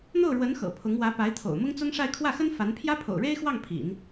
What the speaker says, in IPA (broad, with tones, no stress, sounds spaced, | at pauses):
n̪ o˥˩ ʊ̯ ɻ w ə˧˥ n x ɤ̰˨˩ pʰ ʊ˧˥ ŋ w ä˧˥ p a˧˥ ɪ̯ t̪ʰ o̰˨˩ ʊ̯ m ʊ˥ ŋ t͡s ʊ˥ ŋ ʂ a˥˧ ɪ̯ kʰ w ä˥˩ x ə˥ n f a˧˥ n pʰ j ä˥ pʰ o̰˨˩ ʊ̯ ɻ e˥ ɪ̯ x w ɑ˥˩ ŋ pʰ ḭ˨˩˦ n